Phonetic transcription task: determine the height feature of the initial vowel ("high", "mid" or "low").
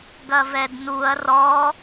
low